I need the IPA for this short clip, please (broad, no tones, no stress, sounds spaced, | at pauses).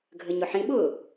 ɡʱ ə ɲ ʊ ħ ĩ ɓ ʊː